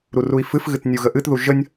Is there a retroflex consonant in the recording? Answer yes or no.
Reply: no